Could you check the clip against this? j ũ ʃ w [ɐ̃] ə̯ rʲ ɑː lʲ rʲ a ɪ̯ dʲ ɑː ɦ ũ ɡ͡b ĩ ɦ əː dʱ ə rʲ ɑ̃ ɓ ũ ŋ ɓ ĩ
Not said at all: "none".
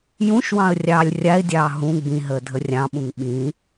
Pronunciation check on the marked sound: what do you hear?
ɑ̃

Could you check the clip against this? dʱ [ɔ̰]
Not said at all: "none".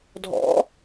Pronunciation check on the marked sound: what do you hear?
ɔ̰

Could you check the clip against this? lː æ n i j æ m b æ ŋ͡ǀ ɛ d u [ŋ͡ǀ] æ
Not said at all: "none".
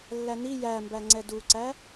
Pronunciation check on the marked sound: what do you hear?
ǀ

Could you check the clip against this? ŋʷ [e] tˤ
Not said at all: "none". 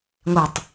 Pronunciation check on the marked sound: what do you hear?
e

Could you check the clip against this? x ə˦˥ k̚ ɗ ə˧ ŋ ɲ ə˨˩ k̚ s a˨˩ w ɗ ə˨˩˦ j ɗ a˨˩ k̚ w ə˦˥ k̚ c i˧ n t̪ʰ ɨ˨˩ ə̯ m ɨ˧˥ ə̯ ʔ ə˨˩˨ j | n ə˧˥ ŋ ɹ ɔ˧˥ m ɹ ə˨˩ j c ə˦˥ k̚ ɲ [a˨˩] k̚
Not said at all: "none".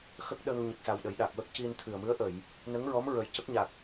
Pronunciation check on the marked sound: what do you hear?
a˨˩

